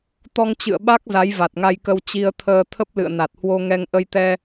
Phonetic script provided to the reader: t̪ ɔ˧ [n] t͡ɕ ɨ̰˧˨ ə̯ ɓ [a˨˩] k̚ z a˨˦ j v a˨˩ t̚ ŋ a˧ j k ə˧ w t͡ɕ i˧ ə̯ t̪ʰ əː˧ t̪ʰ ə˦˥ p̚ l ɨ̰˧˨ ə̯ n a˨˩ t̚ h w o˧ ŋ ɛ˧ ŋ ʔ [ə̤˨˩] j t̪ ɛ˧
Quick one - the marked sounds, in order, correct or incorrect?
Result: incorrect: ŋ, incorrect: a˦˥, incorrect: ə˧

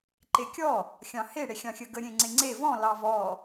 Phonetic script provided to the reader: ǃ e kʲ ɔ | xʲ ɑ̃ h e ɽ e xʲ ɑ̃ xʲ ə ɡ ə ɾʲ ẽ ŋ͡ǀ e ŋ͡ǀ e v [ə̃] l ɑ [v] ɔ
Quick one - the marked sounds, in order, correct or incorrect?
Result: incorrect: ɔ̃, correct

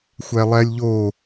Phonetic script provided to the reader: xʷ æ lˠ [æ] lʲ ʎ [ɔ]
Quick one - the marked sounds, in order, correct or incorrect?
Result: correct, incorrect: o

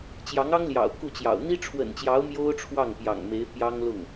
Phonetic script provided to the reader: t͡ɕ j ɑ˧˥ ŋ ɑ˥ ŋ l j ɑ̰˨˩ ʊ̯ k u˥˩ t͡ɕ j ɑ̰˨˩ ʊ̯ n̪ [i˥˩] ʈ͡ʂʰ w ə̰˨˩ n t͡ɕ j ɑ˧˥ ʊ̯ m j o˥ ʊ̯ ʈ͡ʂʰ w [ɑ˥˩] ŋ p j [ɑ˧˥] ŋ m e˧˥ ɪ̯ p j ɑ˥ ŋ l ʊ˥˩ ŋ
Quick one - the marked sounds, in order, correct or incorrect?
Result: incorrect: i˥, correct, incorrect: ɑ̰˨˩

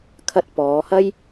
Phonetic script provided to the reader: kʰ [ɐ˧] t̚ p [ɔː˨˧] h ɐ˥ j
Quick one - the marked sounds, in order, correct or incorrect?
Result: correct, correct

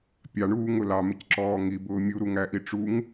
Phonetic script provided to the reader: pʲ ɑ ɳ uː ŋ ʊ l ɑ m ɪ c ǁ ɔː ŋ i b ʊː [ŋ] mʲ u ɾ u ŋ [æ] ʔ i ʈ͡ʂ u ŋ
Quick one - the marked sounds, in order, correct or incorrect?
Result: incorrect: none, correct

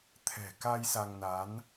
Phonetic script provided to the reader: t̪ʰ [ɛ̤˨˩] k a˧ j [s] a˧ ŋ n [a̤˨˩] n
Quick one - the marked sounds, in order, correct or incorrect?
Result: correct, correct, incorrect: a˨˦

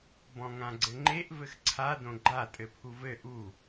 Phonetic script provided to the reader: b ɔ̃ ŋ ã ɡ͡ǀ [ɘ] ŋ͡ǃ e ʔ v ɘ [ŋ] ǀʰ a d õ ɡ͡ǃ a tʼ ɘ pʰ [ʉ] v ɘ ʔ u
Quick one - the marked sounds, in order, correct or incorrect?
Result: correct, incorrect: x, incorrect: u

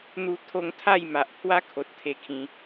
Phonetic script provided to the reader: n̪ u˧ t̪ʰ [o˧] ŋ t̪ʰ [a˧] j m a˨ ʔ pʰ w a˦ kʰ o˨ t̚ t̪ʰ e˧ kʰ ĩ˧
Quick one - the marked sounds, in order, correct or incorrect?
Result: correct, incorrect: a˥˧

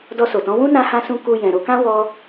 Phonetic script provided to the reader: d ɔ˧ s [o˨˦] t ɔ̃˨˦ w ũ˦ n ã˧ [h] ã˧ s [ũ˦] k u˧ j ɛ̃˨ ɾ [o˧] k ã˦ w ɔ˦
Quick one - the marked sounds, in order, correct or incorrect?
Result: incorrect: o˨, correct, incorrect: ũ˧, correct

